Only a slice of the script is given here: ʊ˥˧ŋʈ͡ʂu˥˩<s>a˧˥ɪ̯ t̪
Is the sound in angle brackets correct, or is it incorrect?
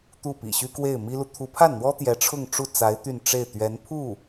incorrect: t͡s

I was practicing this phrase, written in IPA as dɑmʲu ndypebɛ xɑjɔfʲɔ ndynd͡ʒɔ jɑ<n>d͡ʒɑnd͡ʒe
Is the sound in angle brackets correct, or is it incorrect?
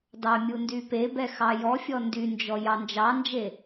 correct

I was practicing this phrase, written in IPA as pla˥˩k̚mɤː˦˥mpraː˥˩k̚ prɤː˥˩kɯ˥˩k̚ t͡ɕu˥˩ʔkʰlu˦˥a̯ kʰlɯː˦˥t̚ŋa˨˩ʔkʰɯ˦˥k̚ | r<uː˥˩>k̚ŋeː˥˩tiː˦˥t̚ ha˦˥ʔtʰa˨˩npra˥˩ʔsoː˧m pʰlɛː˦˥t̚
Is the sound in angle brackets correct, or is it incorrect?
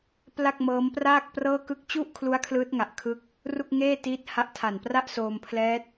incorrect: u˥˩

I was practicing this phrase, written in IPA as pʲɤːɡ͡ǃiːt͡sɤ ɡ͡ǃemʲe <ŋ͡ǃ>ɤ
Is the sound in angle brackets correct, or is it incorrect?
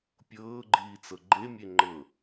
correct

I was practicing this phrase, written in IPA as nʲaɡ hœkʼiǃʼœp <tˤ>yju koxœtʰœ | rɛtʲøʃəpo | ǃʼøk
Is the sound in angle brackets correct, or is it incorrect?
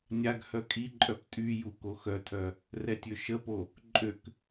incorrect: tʼ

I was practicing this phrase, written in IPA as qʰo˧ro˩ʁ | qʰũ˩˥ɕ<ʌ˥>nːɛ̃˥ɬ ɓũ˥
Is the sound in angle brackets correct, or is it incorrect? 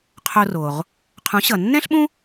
incorrect: ʌ˩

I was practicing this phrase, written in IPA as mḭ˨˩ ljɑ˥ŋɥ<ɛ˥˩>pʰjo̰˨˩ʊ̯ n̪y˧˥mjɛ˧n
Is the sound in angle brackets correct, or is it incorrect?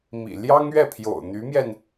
correct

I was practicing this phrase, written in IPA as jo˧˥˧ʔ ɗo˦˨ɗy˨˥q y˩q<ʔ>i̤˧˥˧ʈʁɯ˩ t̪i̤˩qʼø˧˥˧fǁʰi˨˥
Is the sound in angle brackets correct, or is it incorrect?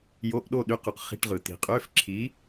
incorrect: χ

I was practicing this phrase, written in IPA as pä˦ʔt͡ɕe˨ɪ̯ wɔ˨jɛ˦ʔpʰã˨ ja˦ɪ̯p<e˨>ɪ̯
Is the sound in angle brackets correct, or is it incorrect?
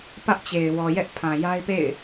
incorrect: ḛ˦˨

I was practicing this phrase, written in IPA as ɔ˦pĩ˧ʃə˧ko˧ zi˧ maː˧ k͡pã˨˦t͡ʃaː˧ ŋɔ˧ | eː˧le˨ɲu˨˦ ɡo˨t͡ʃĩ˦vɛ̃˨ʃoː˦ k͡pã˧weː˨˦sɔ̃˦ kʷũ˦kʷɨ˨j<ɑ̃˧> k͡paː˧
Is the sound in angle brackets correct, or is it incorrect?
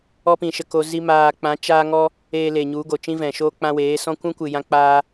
incorrect: ã˧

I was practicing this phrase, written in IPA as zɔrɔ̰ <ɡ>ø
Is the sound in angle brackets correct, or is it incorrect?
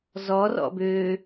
incorrect: b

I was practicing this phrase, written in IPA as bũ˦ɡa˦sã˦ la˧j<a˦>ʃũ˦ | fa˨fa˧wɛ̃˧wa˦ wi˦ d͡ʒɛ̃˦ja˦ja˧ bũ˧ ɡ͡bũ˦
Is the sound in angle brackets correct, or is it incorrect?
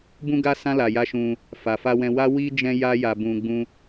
correct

